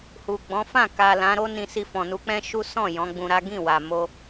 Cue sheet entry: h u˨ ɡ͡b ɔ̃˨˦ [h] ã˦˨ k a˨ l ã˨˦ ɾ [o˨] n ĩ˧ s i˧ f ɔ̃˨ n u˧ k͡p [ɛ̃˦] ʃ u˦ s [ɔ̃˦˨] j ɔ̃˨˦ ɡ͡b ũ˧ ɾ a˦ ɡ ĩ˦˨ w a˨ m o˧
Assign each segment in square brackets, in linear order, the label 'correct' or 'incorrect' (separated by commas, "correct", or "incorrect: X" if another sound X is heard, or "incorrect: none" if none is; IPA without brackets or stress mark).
incorrect: f, incorrect: o˦, correct, correct